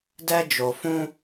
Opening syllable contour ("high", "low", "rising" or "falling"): high